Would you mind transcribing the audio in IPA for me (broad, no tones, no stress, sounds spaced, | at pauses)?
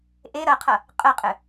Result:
ʔ e ɾ ɐ qʰ ɐ | qʼ ə qʼ ɘ